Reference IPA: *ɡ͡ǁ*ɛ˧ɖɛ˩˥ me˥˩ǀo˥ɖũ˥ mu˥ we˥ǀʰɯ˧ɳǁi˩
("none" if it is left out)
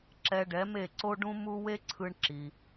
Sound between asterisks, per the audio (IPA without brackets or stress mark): ǁ